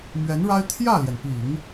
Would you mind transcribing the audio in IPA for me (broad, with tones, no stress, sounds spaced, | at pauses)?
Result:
m ɥ ɛ˧˥ n ɻ a˥ ɪ̯ t̪ʰ j ä˥˩ l j ɛ˩ n p i˨˩˦ ŋ